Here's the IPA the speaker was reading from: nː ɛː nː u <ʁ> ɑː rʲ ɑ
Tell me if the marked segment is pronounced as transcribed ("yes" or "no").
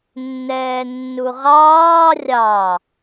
yes